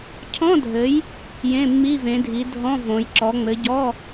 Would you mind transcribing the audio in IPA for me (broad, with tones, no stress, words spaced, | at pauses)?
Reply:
cʰɔ̃˧˥˧dʱɘ˨˦j | jẽ˧˥˧mːi˧˥˧vẽ˨˦dʱi˨˦ dʱɔ̃˧˥˧ võ˨˦j ǁɔ˨˦ŋ͡mɘ˨˦ɟɔ˧˥˧